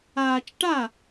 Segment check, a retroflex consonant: present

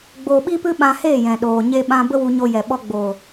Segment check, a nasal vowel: present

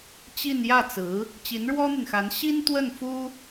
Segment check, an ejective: absent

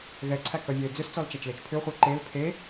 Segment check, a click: present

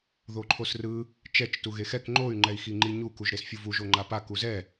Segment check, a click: present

